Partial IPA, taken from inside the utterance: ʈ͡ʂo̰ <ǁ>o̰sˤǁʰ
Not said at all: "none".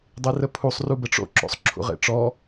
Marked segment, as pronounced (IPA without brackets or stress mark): ǁ